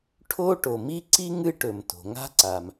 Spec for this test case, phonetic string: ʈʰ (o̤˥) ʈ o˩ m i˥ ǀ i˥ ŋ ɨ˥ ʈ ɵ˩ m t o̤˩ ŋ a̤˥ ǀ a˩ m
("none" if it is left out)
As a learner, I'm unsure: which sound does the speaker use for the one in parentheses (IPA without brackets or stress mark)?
o˥